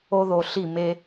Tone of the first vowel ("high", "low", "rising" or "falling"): high